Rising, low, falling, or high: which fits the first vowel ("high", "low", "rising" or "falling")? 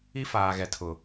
high